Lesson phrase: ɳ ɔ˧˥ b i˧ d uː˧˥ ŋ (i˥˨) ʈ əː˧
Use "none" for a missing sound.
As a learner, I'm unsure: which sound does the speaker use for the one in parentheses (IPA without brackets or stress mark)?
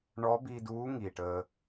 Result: i˨˩